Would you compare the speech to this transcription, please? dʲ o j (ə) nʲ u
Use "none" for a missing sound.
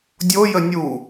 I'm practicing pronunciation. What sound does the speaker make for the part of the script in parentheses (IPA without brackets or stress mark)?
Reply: ə